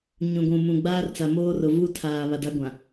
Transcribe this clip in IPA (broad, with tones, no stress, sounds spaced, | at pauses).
ɲ ũ˨ ɡʷ ũ˨ m ũ˨ ɡ͡b aː˦ r t͡s a˨ m oː˦ r ʊ˨ v u˦ tʰ aː˨ β a˨ d a˦ ɡʷ ã˨